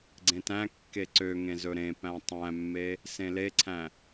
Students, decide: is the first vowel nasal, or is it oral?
nasal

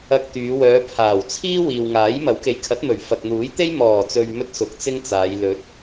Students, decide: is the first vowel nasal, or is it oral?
oral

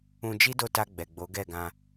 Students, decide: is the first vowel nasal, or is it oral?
nasal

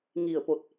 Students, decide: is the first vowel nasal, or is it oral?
oral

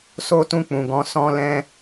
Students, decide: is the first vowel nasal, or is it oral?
oral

